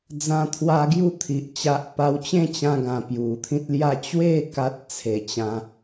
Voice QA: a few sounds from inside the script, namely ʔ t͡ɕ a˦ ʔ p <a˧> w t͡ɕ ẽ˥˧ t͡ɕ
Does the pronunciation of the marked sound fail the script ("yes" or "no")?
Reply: yes